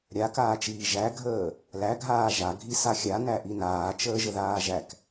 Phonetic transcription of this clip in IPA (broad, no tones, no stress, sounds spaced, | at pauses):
ɾʲ a k aː t͡ʃ iː ʒ æ ɡʱ əː | l æ ɡʱ aː ʒ a ɡʱ i s a xʲ a n æ ʔ i n aː t͡ʃ əː ʒ ə ð aː ʒ æ k